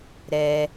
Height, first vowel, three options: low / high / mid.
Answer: mid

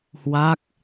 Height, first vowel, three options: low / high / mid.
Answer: low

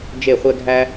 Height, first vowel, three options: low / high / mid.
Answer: mid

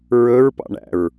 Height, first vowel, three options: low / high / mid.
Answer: mid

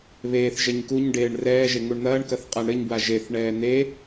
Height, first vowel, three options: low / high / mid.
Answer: mid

